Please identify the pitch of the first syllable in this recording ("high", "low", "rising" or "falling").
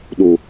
low